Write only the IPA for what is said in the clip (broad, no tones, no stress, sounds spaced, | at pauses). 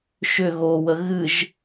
ʃ ʏ ɣ o w ə ɣ ɨ ʒ